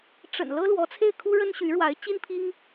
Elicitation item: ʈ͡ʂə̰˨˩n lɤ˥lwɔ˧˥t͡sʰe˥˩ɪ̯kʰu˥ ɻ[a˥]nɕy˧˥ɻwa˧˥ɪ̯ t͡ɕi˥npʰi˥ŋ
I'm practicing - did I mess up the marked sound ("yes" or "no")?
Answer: yes